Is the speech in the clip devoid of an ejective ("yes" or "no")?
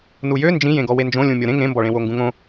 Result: yes